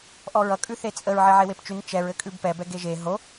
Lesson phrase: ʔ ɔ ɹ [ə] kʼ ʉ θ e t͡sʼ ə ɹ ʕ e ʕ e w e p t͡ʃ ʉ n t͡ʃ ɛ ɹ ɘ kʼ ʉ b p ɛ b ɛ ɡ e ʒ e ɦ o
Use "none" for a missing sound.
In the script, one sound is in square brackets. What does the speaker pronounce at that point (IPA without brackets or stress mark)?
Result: ʌ